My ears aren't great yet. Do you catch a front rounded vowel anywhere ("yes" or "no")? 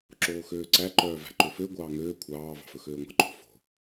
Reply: yes